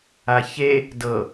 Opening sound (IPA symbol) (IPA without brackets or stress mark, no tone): a